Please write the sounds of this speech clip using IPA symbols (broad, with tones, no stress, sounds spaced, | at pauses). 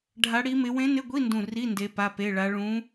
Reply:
ɖʱ a˧˥ ɽ i˧˥ m ɪ˧˥ w ẽ˧˥ n ɪ˧˥˧ ɡʷ i˧˥˧ n d ũ˧˩ r i˧˥˧ n d e˧˥ p a˧˥˧ p e˧˥˧ ɭ a˧˥ ɭ ũ˧˥